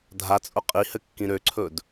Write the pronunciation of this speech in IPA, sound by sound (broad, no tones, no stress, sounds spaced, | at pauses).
dʱ a t͡sʼ ʊ qʼ i h ɘ kː ĩ ɾ ø ǀʰ ɵ d